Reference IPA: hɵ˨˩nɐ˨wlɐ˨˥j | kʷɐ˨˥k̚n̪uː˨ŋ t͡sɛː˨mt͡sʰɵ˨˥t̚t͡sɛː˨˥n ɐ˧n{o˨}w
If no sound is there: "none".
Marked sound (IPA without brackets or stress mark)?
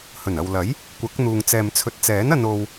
o˧